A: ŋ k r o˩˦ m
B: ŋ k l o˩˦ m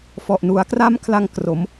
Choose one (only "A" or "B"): A